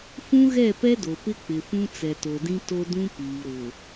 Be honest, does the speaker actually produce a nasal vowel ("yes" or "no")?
yes